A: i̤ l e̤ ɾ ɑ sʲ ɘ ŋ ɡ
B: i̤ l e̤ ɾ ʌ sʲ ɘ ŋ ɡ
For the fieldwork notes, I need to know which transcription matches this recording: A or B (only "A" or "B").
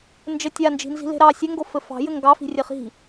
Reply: A